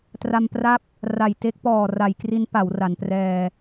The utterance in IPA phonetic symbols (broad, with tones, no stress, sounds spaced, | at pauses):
t r a˧ m p r a˥˩ p̚ | r a˨˩ j t e˦˥ k̚ p ɔː˨˩ r a˩˦ j k r i˦˥ n p a˩˦ w r a˩˦ n p r ɛː˧